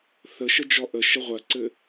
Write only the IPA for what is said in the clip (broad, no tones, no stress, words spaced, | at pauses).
θəʃə d͡ʒɔʔəʃə ʁʷɜǀɘ